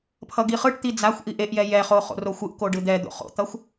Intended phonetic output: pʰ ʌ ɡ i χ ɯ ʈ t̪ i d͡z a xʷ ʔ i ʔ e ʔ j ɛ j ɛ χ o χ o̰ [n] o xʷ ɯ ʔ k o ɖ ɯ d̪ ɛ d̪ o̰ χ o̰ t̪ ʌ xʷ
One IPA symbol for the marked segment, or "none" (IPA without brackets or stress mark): r